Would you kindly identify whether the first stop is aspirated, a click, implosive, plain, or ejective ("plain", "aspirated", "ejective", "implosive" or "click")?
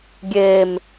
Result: plain